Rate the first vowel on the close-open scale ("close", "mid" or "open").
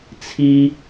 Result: close